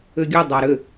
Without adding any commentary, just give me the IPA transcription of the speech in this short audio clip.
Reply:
ʏɡʲʊ dˤaɾʏ

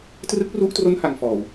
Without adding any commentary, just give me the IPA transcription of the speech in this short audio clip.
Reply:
trɯ˦˥k̚ru˦˥ʔtro˦˥n ha˧ŋfɔː˨˩w

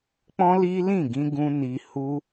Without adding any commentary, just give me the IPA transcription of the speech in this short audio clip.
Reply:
k͡pɔ̃˦li˦lĩ˦˨ ɡĩ˧ɡũ˧ ni˧ hu˧

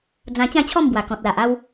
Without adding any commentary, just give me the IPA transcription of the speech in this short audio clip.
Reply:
d͡zã˧t͡ɕã˥˧t͡ɕʰɔ˥˧mbwa˨˩ kɔ̃˨t̚la˨ʔ a˧w

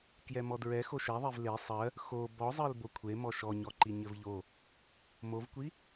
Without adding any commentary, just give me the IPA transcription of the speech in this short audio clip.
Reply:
kjɛmɔdɹɛ xoʃɛðˤev le sˤɜ | xo bɔzˤɜl bokʷʰemɔ ʃɔɲɔǃi ɲɘvʎo | movkʷi

